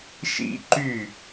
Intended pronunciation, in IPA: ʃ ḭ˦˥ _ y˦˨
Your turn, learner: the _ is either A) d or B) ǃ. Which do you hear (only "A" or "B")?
B